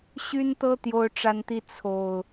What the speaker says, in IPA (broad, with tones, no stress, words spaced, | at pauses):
ɕy˦nt̪ɤ˦ t̪jo˦ʊ̯ʈ͡ʂa˦nt̪i˦ t͡sʰo˨˩ʊ̯